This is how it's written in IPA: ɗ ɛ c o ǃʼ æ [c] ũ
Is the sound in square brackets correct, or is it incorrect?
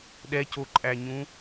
incorrect